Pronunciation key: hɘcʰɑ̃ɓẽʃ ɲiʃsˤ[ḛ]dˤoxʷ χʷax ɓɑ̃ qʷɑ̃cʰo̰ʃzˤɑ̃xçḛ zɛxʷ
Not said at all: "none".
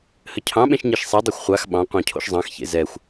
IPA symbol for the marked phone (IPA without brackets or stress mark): e